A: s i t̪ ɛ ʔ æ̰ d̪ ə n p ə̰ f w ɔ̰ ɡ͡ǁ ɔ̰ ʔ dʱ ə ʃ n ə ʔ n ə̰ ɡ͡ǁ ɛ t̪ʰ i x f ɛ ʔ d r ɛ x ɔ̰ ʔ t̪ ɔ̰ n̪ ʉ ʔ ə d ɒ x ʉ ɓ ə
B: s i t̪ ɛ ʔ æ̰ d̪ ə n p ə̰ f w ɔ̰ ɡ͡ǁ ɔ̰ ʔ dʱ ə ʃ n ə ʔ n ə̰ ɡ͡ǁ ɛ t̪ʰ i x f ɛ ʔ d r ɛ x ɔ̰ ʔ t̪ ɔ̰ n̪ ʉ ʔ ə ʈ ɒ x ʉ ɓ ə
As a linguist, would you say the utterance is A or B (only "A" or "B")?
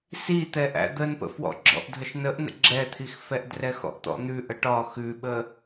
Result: B